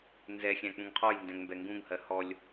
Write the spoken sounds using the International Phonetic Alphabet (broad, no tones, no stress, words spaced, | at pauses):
nzɛ xʲæ̃k͡pũŋqʰɔj ndɛ̃ŋmbɛŋɡũŋ hɜhɔlʲ